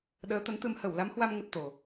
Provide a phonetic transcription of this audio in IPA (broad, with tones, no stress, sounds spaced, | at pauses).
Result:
ɗ əː˨˦ t̪ ə˨˦ n t̪ ɨ˧ m h ə˧˩ w l a˨˦ m h w a˧ m ŋ ə˦˥ t̚ t̪ o˨˩